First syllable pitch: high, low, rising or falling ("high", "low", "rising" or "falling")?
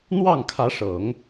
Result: falling